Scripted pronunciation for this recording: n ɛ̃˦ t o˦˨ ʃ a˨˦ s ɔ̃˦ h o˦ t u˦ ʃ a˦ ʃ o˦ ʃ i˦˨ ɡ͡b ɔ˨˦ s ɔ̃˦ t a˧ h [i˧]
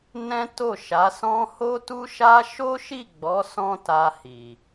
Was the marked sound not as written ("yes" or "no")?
yes